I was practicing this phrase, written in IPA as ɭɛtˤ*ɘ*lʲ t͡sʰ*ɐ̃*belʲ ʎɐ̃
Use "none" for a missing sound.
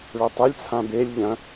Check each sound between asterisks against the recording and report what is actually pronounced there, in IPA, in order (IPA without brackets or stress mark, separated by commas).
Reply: ɘ, ã